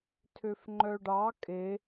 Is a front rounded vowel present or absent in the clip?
present